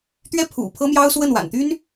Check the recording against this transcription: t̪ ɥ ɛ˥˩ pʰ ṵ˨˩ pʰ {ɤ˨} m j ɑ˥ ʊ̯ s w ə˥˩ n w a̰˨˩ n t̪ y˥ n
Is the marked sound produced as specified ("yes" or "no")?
no